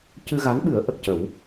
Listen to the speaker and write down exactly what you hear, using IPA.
c ɨ˧ ɣ a˧˥ n ɓ ɨ˨˩˦ ə̯ ʔ ə˨˩ k̚ c ə˨˩˦ w

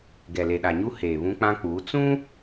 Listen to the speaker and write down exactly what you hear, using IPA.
ɡ ɛ˨ l e˨ ɗ a˨ ɲ u˦ h eː˨ β ũ˦ k͡p ã˦ k͡p uː˨˦ t͡s ũ˦

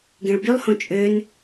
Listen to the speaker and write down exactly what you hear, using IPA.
ɡ ẽ ɭ b y lˠ h õ t͡ʃʼ ø n

